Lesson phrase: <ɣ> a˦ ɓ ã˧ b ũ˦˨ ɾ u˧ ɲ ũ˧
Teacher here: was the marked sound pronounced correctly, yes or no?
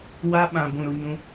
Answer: no